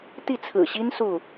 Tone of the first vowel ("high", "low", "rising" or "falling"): falling